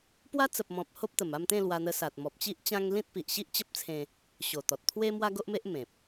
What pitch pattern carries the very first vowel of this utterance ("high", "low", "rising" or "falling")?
high